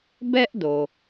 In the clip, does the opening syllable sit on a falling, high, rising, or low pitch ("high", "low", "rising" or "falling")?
high